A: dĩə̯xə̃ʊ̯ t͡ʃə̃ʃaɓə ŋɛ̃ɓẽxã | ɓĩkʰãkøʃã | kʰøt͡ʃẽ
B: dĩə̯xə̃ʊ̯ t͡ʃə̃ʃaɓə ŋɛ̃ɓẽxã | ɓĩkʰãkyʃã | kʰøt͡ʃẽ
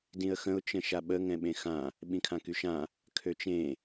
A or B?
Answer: B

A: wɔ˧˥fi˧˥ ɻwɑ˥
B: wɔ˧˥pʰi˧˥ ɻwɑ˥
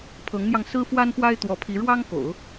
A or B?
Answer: B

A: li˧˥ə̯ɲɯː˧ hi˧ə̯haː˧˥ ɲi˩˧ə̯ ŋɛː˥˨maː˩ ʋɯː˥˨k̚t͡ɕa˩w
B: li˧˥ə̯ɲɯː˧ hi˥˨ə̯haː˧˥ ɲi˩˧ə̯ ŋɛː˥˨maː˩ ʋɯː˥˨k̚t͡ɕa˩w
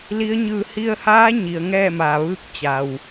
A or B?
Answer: A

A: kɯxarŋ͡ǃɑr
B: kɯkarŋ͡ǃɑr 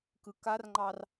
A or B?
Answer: B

